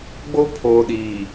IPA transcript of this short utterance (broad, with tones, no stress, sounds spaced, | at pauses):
ɡ͡b o˦ pʰ oː˨ ɗ iː˨